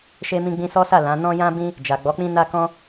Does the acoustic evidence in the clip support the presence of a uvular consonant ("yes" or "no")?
no